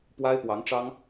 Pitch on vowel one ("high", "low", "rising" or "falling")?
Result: high